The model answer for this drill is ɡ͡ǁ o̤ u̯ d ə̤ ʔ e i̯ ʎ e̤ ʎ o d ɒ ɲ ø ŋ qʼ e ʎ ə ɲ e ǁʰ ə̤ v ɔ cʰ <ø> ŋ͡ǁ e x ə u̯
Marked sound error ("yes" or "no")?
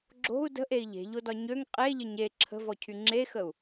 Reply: yes